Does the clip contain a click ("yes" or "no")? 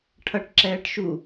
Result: yes